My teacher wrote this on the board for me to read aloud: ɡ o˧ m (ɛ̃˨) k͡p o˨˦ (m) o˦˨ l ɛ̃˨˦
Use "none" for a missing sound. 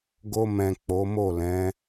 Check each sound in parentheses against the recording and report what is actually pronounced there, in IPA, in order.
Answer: ɛ̃˨, m

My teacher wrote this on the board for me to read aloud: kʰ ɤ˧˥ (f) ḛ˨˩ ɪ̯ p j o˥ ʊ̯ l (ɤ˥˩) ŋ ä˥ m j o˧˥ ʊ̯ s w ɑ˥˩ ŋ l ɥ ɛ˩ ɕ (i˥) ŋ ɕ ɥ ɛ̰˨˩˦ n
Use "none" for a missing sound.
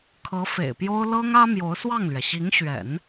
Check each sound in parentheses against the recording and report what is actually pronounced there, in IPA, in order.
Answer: f, ɤ˥, i˧˥

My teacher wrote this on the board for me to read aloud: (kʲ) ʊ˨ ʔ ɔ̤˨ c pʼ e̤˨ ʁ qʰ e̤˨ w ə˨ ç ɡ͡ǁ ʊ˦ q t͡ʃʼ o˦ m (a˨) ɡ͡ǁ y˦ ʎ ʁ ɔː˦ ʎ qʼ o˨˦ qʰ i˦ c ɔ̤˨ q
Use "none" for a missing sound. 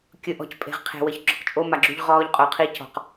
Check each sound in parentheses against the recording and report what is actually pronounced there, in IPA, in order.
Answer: kʲ, a˨

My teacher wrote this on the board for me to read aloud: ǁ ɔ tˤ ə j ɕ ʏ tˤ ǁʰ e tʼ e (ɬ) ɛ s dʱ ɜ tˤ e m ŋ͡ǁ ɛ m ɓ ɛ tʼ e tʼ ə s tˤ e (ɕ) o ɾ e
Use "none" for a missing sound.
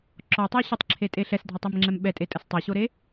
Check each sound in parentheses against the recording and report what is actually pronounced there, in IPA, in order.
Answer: ɬ, ɕ

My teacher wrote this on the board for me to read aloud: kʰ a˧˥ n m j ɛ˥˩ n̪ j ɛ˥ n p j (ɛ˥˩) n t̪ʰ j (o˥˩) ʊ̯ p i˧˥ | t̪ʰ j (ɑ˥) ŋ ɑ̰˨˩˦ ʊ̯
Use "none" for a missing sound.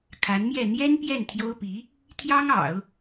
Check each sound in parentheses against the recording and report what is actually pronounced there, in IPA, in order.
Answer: ɛ˥˩, o˥, ɑ˥

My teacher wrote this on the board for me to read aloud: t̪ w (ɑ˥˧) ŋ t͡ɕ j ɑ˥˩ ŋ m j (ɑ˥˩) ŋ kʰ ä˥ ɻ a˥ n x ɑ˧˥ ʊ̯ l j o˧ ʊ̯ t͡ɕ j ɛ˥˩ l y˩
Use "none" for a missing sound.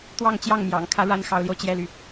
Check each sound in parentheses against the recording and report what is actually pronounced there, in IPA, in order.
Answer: ɑ˥˧, ɑ̰˨˩

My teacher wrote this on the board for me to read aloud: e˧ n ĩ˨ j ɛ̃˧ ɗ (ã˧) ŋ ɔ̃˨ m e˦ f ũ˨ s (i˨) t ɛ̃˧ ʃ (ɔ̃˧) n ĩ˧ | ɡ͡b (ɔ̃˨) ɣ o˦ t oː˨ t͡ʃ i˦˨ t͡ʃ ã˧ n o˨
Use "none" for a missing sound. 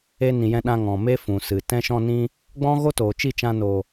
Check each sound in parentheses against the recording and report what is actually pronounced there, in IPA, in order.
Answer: ã˧, ɨ˨, ɔ̃˧, ɔ̃˦

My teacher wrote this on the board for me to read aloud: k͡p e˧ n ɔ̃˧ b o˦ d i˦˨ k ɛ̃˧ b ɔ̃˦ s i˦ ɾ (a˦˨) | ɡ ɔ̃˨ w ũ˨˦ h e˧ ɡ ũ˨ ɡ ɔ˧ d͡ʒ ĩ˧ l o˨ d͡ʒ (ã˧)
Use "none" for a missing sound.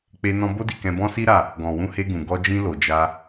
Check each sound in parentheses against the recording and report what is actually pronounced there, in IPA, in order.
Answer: a˦˨, a˧

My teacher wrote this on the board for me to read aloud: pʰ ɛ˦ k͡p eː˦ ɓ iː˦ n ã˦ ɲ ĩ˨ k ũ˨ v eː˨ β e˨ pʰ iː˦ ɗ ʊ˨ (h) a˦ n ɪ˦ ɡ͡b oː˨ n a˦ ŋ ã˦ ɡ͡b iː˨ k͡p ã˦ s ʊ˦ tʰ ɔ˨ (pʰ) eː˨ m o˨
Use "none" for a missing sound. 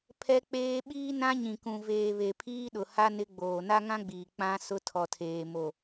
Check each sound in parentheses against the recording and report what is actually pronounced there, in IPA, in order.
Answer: h, tʰ

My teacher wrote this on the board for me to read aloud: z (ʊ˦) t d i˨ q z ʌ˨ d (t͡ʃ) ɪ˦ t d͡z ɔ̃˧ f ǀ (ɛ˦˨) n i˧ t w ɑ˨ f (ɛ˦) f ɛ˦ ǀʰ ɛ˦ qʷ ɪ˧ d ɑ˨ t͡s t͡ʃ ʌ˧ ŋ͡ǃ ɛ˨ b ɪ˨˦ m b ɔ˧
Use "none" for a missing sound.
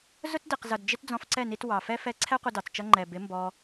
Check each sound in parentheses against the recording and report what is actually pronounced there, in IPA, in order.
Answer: ʊ˦, d͡ʒ, ɛ˦˨, ɛ˦

